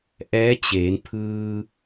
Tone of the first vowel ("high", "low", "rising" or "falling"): rising